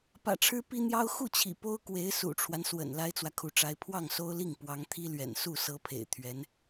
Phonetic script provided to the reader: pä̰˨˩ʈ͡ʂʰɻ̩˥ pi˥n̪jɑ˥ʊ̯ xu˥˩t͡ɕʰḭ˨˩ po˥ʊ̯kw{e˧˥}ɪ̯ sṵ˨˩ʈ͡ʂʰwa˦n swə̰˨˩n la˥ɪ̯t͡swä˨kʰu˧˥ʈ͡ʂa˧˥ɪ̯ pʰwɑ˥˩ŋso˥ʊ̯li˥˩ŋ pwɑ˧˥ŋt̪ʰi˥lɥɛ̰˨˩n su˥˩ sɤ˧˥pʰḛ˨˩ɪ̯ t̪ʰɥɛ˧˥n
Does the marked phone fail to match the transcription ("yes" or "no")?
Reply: no